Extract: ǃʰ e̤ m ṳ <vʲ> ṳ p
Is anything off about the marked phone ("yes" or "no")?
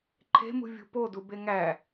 no